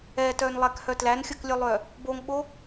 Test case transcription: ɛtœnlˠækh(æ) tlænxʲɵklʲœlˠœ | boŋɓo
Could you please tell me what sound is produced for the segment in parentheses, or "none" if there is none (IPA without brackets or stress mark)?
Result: œ